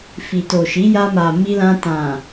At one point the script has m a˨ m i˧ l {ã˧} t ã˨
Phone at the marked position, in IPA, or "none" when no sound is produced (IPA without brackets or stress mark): ã˧